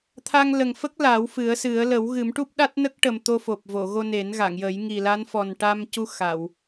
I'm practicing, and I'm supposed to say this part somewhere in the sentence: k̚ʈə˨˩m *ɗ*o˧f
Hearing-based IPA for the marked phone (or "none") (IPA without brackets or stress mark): t̪